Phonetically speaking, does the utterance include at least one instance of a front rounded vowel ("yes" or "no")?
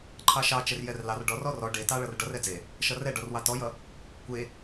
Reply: no